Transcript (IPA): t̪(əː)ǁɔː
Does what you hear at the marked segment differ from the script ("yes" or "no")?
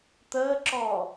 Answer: no